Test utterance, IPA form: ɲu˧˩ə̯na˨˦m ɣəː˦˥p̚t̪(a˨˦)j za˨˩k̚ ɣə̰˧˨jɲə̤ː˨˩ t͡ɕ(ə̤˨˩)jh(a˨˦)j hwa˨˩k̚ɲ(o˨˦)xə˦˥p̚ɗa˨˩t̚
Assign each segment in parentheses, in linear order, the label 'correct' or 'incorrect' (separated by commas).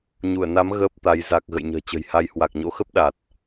correct, correct, correct, incorrect